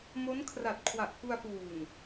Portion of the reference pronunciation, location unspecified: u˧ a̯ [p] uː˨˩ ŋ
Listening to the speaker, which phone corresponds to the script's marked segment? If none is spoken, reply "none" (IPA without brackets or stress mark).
p